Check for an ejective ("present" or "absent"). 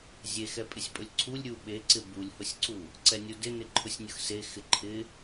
present